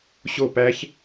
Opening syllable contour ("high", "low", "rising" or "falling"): falling